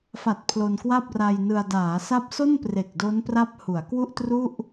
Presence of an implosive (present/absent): absent